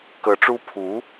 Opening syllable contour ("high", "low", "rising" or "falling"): rising